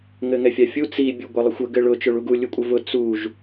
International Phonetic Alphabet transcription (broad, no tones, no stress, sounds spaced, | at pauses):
ŋ ɘ ŋ ɛ fʲ a fʲ u t͡s i bʲ u ɡʷ ɘ lˠ ʊ xʷ ə ɡ ɘ ɭ ʊ t͡ʃ ø ɭ u ɡ u lʲ u kʷʼ ə v ʊ t͡s u ʒ